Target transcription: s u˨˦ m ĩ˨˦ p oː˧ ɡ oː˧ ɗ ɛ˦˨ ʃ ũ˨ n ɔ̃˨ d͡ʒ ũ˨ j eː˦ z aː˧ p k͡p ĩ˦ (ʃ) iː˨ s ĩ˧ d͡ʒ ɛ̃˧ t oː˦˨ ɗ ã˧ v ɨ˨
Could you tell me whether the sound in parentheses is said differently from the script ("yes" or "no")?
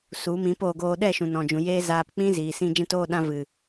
yes